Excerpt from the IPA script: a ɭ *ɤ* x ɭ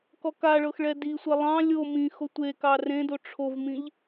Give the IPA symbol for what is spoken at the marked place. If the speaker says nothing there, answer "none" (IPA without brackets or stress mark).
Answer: ɤ